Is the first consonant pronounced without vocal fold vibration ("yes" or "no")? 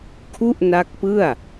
yes